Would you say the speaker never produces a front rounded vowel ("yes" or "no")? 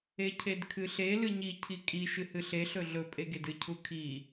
yes